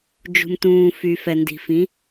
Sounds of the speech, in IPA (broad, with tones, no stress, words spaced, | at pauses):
d͡ʒṳ˩mtũː˩ fy˩ fɛ˩ndi̤˩fĩ˩˧